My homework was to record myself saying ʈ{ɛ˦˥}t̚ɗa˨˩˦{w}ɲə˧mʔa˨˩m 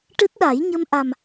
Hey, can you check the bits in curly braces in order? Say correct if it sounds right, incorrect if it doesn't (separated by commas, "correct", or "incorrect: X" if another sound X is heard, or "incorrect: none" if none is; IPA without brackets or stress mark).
incorrect: ɨ˦˥, incorrect: j